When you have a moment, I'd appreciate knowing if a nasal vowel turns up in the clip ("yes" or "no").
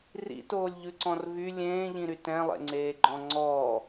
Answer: yes